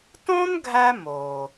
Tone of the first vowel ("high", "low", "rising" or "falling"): high